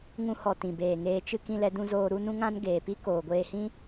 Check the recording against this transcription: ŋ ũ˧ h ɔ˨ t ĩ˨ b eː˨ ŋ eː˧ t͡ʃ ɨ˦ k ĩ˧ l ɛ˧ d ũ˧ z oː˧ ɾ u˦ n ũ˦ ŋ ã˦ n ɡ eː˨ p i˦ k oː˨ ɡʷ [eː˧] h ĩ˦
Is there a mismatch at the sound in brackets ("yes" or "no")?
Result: no